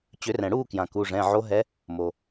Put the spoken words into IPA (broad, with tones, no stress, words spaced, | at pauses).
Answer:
t͡ɕʏ˨˩˦rɛ̃˩ɽuː˥˨kjã˩ ku˩˧˩ʐɛ̃˩˧˩ʕo˧˥ ɦɛ˧˥ | mo˩